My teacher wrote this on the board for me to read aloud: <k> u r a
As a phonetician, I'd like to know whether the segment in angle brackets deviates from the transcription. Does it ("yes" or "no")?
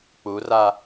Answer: yes